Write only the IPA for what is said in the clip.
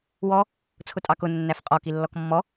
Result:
wɔ | t͡sʰʊtʼɑkʊ nːæfqʼɔ kilːɔkmːɔ

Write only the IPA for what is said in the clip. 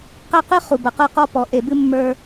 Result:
qæ˦qɨ˦ χu˨bɐ˨qə˞˦qɔ˦ pɔ˨ʔe˨bɨ˦ mːə˞˦

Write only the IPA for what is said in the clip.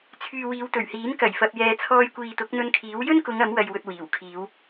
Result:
t͡sʰyː˨wiː˨˧w t̪ɵ˨˩ɥhiː˨˥n kɐ˨˩jfɐ˨p̚jɛː˨ t͡sʰɔː˧jkʷiː˨t̪ʊ˨˥k̚ n̪ɵ˧nkʰiː˨˥w jɵ˥nkʊ˨˧ŋ ɐ˨˥mwɐ˨jwɵ˨t̚ wiː˨˩wkʰiː˨˧w

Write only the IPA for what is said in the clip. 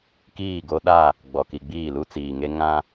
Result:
kiː˦˨ɡo˦ɗa˦˨ | ɡ͡bɔ˨ki˨ɡ͡biː˦˨ lu˦t͡siː˨ŋe˦ ŋã˦

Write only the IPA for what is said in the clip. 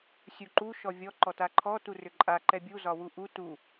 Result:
sʲuǃu ʃɔvʲɔ ǃɔtaǃʰɔ turʏǃʼa ǃɛbʲu zɒwuʔu tu

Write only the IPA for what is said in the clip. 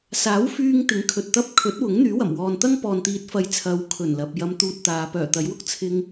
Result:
saː˨˥wfyː˧ŋ t̪ɪ˨˥ŋkʰɵ˨t̚t̪ɐ˥p̚ kʰɵ˨˥t̚wʊ˨˥ŋ n̪yː˨˥wɐ˨˩m wɔː˨nt̪ɐ˥ŋpɔː˨n t̪iː˨t̚ fɐ˨j t͡sʰɐ˨˧wkʰɵ˨˩n lɐ˨p̚ jɐ˧mt̪uː˧t̚ t̪aː˨˧ pœː˨˩t̪ɐ˨˥jwʊ˥k̚ t͡sʰɪ˧ŋ

